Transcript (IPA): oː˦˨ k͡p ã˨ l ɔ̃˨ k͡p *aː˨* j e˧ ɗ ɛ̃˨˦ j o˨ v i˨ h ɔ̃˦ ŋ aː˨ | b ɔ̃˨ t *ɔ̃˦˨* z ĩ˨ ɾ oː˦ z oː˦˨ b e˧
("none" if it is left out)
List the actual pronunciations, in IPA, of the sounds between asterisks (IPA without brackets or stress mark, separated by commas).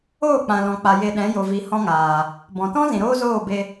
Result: a˨, ɔ̃˦